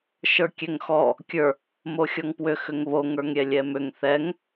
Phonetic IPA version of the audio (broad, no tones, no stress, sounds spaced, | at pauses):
ʃ ə˞ kʲ ɛ ŋ x ɔ | kʲ ə˞ | m o xʲ ɔ ŋ p w ʏ x ʏ ŋ β o ŋ ə˞ ŋ ɾʲ ɛ lʲ ɛ m ʏ ŋ θ ɛ ŋ